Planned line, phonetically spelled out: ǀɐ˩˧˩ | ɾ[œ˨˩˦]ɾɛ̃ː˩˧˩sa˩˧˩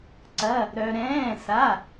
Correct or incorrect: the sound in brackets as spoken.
incorrect: œ˩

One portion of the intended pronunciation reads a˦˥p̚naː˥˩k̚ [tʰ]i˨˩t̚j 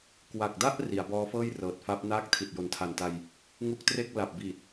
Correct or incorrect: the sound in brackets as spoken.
correct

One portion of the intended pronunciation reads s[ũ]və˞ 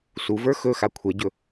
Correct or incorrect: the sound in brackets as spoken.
incorrect: u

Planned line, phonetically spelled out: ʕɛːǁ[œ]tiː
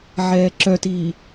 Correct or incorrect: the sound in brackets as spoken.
correct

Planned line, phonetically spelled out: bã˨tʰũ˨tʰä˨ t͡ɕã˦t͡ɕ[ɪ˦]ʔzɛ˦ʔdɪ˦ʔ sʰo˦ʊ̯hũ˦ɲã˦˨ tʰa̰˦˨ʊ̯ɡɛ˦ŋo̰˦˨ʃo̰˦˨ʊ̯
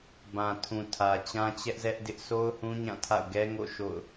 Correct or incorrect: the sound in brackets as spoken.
incorrect: ɛ˦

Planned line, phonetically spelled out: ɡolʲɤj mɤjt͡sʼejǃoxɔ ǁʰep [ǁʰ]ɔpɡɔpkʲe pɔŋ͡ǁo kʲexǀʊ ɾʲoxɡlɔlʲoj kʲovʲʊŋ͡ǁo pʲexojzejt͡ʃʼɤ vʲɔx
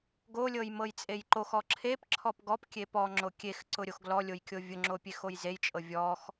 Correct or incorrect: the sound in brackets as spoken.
correct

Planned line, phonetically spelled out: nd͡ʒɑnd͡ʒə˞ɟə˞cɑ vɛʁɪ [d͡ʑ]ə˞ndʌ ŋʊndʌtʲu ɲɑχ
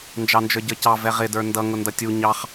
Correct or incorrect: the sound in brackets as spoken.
incorrect: d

